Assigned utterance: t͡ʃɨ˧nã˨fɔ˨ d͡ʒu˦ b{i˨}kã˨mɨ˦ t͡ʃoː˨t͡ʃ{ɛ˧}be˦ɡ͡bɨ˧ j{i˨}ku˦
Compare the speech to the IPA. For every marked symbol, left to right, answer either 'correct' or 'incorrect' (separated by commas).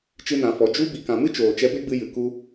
correct, correct, incorrect